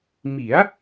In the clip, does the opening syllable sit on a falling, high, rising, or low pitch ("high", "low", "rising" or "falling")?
rising